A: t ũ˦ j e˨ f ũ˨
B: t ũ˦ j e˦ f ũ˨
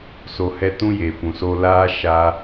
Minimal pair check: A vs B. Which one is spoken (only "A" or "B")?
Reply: A